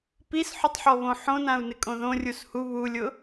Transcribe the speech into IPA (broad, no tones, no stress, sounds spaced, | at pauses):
p i s ħ u tˤ ħ ɔ β õ ħ õ n ã u̯ n ɪ kʼ õ ð õ rʲ u s h u β u lʲ ʊ